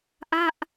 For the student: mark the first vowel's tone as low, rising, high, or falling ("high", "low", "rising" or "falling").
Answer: falling